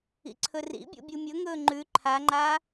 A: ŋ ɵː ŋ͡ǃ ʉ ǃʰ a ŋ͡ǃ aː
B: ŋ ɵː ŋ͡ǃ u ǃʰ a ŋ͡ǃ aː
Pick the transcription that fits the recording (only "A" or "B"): A